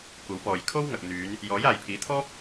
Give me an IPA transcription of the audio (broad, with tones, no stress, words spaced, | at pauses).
kʷɐ˨˥wpɔː˨j kʰo˥wŋɐ˨k̚n̪yː˨˧n | jɔː˨˥jaː˨jpʰiː˨˥ t̪ʰɔː˥p̚